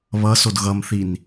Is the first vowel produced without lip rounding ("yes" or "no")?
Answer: yes